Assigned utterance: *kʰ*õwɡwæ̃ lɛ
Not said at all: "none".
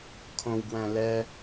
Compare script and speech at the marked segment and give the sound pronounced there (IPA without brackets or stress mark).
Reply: kʰ